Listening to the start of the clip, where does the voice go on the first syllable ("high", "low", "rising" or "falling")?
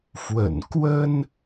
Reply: low